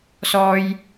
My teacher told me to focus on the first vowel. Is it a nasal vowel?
no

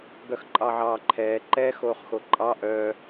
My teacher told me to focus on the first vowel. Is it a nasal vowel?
no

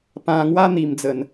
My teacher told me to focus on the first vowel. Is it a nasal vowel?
yes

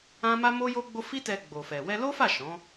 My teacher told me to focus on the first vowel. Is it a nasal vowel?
yes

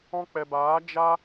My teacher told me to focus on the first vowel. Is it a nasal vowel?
yes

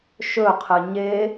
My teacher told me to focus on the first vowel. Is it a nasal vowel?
no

